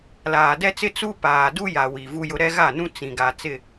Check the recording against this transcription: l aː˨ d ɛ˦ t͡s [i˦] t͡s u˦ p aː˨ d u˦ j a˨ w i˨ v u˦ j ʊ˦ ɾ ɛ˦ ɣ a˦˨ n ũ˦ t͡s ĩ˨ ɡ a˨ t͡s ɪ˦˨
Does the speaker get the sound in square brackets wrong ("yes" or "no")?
yes